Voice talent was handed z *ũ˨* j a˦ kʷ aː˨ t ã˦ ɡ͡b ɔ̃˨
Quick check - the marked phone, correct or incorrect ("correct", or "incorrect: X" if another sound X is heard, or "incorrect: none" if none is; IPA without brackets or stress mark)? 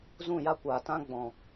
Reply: incorrect: ũ˦˨